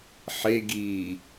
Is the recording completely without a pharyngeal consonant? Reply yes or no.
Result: no